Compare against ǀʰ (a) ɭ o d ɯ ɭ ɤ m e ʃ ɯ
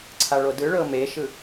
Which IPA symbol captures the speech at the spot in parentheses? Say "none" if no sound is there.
a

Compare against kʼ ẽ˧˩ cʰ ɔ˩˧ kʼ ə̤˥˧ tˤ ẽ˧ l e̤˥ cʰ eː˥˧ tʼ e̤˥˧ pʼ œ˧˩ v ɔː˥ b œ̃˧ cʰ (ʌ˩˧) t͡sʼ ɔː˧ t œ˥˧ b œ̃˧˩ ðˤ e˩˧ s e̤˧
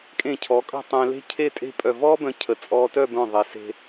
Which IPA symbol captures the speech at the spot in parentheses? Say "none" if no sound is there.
ə˩˧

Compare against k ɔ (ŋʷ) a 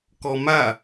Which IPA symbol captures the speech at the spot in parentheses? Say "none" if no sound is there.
m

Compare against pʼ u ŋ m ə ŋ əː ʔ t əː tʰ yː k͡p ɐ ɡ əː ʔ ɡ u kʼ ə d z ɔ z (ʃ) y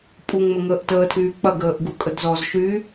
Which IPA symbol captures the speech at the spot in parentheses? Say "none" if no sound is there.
ʃ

